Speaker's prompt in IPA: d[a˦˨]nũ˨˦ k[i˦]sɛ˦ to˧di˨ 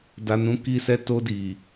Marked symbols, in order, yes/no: no, yes

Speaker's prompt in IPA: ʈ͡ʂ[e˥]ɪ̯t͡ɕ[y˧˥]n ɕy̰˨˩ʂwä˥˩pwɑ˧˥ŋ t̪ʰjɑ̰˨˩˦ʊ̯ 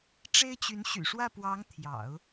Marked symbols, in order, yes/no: yes, yes

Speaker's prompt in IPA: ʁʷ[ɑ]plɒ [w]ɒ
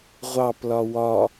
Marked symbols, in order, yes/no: yes, yes

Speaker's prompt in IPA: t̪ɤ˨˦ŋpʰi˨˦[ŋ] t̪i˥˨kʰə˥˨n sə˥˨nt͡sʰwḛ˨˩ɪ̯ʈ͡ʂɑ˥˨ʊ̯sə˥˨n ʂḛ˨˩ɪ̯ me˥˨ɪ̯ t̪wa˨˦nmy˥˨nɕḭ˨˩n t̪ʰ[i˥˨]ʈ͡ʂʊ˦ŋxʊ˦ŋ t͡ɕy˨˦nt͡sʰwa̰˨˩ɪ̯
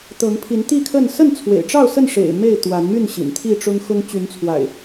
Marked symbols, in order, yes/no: no, yes

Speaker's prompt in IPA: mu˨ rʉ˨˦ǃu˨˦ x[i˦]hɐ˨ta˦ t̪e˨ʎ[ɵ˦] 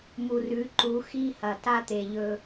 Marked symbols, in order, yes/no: yes, yes

